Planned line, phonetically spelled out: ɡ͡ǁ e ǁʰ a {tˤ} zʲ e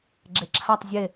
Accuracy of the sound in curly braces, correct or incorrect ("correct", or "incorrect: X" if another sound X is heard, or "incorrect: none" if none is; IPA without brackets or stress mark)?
correct